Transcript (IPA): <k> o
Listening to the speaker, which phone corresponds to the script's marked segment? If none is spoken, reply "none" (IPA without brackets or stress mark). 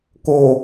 k